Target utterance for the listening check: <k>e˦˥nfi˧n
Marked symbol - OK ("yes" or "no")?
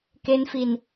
yes